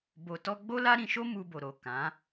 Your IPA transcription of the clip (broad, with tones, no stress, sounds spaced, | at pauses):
b o˧ t ɔ˦ ɡ͡b o˦ l a˦ ɾ ĩ˧ ʃ o˦ m u˧ b o˨ ɾ o˨ k ã˨˦